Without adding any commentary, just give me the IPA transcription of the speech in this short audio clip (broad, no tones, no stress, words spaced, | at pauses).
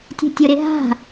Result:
tʲə̤tʲʊ ɾɪɦa̤